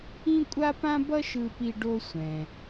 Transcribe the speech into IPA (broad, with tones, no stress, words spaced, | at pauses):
ĩ˥kʷʼa˥pã˥ bʌ˥ʃɯ˧pi˧ ɖo˧sʷɛ̃˩